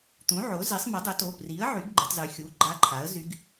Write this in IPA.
t̪ ũ˩˥ ʕ o˩˥ z e˩˥ sˤ m ɨ˩˥ dˤ ʏ˩˥ t o˩˧˩ p r i˩˥ ə̯ ʕ y˩˥ ɡ ɡ͡ǃ ʏ˩˧ tˤ z y˩˧ xʲ u˩˧˩ ɡ͡ǃ a˧˥ ǃʰ a˩˥ ə̯ z y˧˥ ɡ

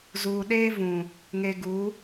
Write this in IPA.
z uː˨ ɗ eː˦ v ũ˨ | ŋ e˨ ɡ u˨˦

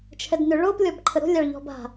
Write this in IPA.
t͡ʃʰ ɛ d n ʏ ɭ o p lʲ ɔ b ǃʰ ə ɾ o̤ lʲ a ɭ ʎ ɔ̤ b a̤

